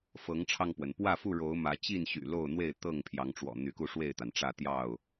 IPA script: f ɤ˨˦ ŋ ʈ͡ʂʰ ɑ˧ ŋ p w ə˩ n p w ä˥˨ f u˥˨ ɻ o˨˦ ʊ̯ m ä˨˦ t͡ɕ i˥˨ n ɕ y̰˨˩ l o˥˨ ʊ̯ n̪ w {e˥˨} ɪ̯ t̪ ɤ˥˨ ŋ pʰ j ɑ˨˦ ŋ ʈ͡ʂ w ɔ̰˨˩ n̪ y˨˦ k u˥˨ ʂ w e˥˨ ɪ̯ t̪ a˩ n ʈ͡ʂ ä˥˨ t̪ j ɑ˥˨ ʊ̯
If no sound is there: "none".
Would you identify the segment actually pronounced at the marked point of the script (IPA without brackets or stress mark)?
e˥˨